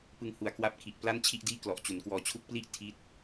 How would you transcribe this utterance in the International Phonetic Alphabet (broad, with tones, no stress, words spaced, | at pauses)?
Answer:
pɯ˧ŋhu˨˩a̯kwa˦˥p̚ kʰi˨˩ʔpla˥˩n t͡ɕʰi˥˩ʔdiː˥˩ klɔ˨˩ʔt͡ɕu˩˦nkwɔː˧ t͡ɕʰu˦˥k̚pli˥˩ʔ tʰi˦˥t̚